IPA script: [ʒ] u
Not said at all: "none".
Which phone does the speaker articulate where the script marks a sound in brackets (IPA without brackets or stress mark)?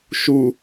ʃ